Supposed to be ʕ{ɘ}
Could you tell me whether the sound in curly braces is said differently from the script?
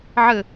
no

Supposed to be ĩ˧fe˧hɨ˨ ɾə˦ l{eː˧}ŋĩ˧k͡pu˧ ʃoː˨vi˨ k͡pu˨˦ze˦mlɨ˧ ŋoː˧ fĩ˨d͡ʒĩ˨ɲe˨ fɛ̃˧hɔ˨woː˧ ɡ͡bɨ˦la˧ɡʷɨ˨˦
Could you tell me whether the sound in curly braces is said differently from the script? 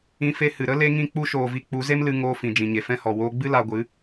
yes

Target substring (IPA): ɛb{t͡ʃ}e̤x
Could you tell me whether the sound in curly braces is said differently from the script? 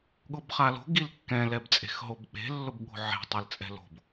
yes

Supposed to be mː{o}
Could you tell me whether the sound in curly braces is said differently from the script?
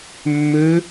yes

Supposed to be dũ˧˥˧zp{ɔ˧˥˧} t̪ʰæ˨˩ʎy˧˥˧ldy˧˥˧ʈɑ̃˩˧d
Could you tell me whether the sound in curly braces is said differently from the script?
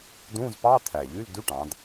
yes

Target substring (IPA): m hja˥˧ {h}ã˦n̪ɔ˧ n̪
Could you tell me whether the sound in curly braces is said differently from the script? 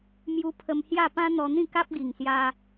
yes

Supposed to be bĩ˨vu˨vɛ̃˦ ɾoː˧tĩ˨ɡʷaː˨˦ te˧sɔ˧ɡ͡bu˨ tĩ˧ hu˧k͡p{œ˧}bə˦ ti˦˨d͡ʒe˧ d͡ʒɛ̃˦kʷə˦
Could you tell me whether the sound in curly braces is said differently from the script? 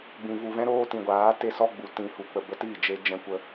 yes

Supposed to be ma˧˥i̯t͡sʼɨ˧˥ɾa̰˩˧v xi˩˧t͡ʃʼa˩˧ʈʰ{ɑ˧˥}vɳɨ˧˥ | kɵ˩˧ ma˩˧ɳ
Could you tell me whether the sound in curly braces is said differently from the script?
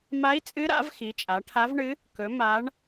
yes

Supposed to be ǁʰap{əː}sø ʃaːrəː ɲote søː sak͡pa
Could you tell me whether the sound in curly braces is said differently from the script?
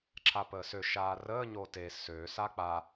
no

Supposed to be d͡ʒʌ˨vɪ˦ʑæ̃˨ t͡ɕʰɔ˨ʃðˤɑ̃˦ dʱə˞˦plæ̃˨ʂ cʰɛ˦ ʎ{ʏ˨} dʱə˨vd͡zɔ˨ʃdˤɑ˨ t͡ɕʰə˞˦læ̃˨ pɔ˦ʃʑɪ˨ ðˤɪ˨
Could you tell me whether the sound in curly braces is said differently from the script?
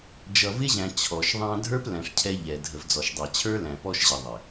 yes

